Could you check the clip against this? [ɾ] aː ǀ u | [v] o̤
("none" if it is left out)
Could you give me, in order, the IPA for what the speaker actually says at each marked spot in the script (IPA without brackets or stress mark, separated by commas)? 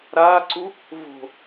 ɾ, v